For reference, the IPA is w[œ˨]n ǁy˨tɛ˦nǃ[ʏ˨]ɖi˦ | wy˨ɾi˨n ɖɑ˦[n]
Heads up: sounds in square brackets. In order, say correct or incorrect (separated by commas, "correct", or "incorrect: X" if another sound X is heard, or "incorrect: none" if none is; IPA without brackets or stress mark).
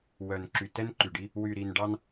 correct, incorrect: y˨, correct